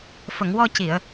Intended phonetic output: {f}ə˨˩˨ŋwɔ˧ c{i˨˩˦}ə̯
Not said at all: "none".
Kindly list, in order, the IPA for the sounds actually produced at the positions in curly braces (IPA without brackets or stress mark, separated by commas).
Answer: f, i˨˩˨